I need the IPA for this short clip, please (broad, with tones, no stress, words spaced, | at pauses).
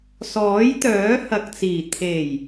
sɔː˨˥jt̪œː˨˥hɐ˨k̚t͡siː˨˩ t̪ʰe˨˩j